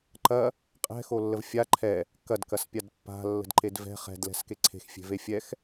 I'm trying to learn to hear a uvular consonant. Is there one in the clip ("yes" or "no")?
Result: yes